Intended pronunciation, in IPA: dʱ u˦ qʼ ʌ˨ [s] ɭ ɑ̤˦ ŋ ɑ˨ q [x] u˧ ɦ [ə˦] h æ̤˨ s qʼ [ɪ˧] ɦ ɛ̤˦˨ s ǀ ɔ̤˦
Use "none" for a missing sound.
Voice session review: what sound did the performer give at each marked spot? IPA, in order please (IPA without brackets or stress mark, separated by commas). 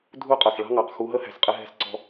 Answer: s, x, ə˦, ɪ˧